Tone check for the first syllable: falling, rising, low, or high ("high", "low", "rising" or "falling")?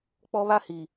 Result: high